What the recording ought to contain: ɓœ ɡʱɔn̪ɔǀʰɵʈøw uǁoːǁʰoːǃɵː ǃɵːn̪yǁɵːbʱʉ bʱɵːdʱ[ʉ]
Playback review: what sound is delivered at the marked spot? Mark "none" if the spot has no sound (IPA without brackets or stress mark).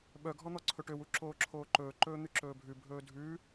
ʉ